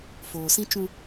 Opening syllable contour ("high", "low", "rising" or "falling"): low